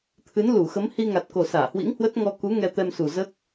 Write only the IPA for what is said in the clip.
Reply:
t̪ʰɨ˨˦nlu˧˩xə˨˦m hi˧ŋa˨˩t̚ko˨˩ saː˧˩hwḭ˧˥ŋhwə˦˥t̚ ŋɔ˧ku˨˦ ŋɛ˧t̪ɛ˧msu˨˩ zəː˦˥k̚

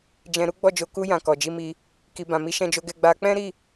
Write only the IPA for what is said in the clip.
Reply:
d͡ʒɛ̃˧ ɾu˦ɡ͡bɔ˦˨d͡ʒo˨˦ ku˧jã˨ kɔ˨d͡ʒi˧mi˧ | ki˨bã˨mi˨˦ ʃɛ̃˧d͡ʒo˧ɡɛ˧ ɡ͡ba˧ k͡pɛ̃˦ɾi˦˨

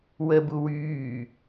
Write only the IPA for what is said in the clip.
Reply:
wəbu wyː

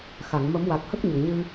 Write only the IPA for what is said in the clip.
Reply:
xa˨˩˨ŋ mə˨˩˦mwa˨˩k̚hə˦˥k̚ ɲə˨˩˨ŋɲɨ˧

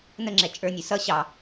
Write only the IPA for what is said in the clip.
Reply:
nəŋ͡ǁɛ t͡ʃʼə˞nʲu sʌ ɕɑ

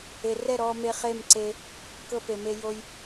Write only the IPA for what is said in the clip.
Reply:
e˨rɛ˦˨ ɾɔː˧ me˧χe˦˨mǀe˧ | kɤ˧pe˨me˧jo˧j

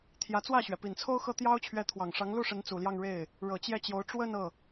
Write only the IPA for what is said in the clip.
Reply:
t̪ʰjä˧˥t͡swä˥˩ɕɥɛ˩ pi˨˩nt͡sʰo˥ʊ̯xɤ˥˩ t̪jɑ˥ʊ̯ t͡ɕʰɥɛ˧˥t̪ʰwɑ˨˩ŋʂɑ˧˥ŋ lu˥˩ʂə˧˥n t͡su˨˩ljɑ˥˧ŋ ɻe˥˩ɪ̯ | ɻɤ˨˩t͡ɕjɛ˥˩t͡ɕjo˧˥ʊ̯ ʈ͡ʂwə˥˧n ɤ˥˩

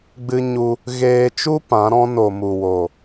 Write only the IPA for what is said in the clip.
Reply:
ɡ͡bɨ˧ɲu˧ | ɣeː˧ t͡ʃu˦ pã˨˦ɾɔ̃˦ no˨mu˨wo˨

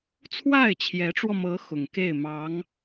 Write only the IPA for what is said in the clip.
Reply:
t͡sʰwa˥˩ɪ̯t͡ɕʰjɛ˧˥ʈ͡ʂwɔ˧mɤ˧˥ xʊ˨˩ŋke˥˩ɪ̯ mɑ˧˥ŋ

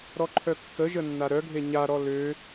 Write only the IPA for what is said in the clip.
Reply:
ɾɔǃʰœkːəʒə nːaɾœɡʱe ɲaɾɔ lø

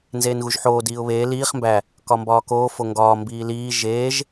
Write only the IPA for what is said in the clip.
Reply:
nzeːnɣuʒħoː diːʊ̯βeː liːχ mbæ | kɒmbɒːkoː foŋɡɒː mbiːliː ʒeːʒ

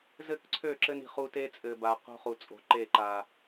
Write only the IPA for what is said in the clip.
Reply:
zɘ˦˨kǀʰø˦˨ǁɘ˦n i̤˨χu˦ te˦t͡sʼɘː˨ba˨ qo̤˦ χu˨t͡sʼo̤˨ ǃe˦˨ǃaː˨

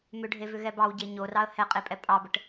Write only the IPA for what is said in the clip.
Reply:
mʏɖʱevʏ ɣɛbɑwɟe ɲorɑə̯ hɛqʼepʼɛ pʼɑbəʈ

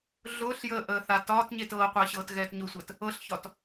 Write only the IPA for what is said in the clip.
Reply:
ɮʊːɬjəːʔəːθa tɒːtɲet ɤːqʷəːɕɤːtɣɛːt ɲʊsʷəːt | ɤɬçɒt

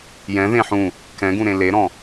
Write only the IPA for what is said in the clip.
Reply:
jɛ̃ðẽ ħũ | kɛ̃ɡũɾẽ leɾɔ̃

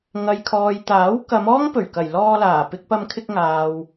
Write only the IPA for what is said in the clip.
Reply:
ŋɐ˨jkʰɔː˨jt̪aː˨˥w kɐ˨˧mɔː˥ŋpɵ˨˩ɥkɐ˨˩j lɔː˧laː˨˩ pɪ˧k̚pɐ˧mkʰɪ˧k̚ŋaː˨w

